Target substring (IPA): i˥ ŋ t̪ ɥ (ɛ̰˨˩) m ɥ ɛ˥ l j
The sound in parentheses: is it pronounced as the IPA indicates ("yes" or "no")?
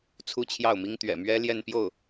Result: yes